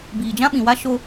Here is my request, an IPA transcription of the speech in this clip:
b iː˨ d͡ʒ ã˦ ɓ ĩ˨ w a˦ ʃ o˦

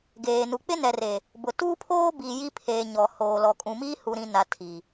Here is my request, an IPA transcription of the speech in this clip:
ɡ eː˨ n u˨ k͡p ɪ˦ n ɛ˨ r e˨ | b ʊ˨ t uː˦ pʰ oː˦ b i˨ j i˦ pʰ eː˨ ɲ ɔ˨ h oː˨ l ɔ˨ kʼ ũ˨ m iː˦ h u˨ ɾ ĩ˨ n a˨ tʰ i˨

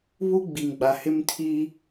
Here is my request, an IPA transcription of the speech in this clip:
β u˦ ɡ͡b i˨ ŋ ɡ͡b a˨ h ɪ˦ m tʰ i˦

